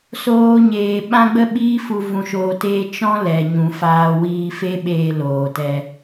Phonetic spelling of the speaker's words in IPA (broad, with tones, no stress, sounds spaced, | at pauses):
s oː˦ ɲ eː˧ ɓ ã˦ ɡ͡b ə˦ ɓ iː˦ f u˧ v ũ˧ ʃ oː˧ t eː˦ t͡ʃ ɔ̃˦ l ɛ˨ ɲ ũ˨ f aː˧ w iː˧ f e˦ ɓ eː˧ l oː˨ t ɛ˧